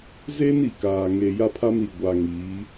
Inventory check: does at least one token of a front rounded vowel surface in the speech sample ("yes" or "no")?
no